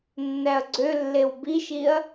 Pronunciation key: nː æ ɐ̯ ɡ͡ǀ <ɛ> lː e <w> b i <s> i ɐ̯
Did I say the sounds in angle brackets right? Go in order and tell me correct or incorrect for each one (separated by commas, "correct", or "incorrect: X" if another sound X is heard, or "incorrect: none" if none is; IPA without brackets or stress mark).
incorrect: ø, correct, incorrect: ʃ